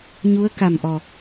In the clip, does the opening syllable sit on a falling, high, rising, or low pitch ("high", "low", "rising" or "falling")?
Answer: rising